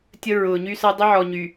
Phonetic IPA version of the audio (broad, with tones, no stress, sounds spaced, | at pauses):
tʲ ə˦ ɹ ʊː˨ ɲ y˦ s ɐ˦ dˤ ə˦ ʕ ɔ˨ ɲ y˨